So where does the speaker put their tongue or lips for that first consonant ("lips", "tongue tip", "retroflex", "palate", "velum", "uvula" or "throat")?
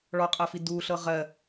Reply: retroflex